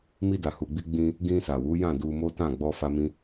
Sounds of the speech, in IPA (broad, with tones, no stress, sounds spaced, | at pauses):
m i˧ d a˨ h u˨ ɡ͡b i˧ ɡ͡b ĩ˧ | ɡ ĩ˧ s a˨ w u˨˦ j ã˦˨ d u˧ m o˦ t ã˦˨ ɡ͡b ɔ˧ f a˦ m ĩ˦